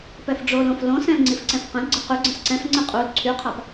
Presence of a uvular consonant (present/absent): present